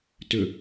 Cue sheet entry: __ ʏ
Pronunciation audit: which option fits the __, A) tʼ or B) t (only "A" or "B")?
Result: B